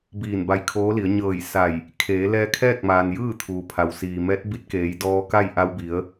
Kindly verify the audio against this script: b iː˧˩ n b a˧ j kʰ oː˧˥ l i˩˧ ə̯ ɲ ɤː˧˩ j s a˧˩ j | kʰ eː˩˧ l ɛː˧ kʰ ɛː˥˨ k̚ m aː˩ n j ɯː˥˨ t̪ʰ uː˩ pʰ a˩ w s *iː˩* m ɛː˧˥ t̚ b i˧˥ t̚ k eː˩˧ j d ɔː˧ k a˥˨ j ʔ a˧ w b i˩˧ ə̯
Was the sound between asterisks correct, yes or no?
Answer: yes